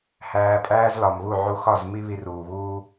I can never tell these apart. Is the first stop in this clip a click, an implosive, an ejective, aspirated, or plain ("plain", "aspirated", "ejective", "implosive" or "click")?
ejective